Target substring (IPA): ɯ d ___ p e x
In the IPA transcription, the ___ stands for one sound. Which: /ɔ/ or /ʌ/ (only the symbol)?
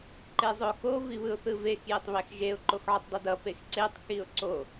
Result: ʌ